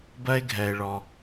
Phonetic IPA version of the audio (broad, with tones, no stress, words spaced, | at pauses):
bɜ˥e̯ɡʱɛ˩e̯ɭɔ˩